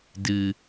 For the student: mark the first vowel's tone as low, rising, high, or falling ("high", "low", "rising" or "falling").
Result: low